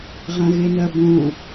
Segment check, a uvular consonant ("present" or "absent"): present